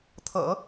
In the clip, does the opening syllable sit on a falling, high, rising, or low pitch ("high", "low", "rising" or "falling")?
low